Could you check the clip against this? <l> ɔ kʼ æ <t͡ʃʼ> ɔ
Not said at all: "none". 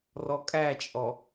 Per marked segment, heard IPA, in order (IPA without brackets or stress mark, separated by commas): r, t͡ʃʼ